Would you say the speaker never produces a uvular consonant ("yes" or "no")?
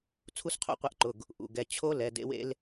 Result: no